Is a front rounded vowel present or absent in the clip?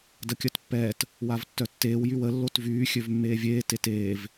present